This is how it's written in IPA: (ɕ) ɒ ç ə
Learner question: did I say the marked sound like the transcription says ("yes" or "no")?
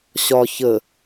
yes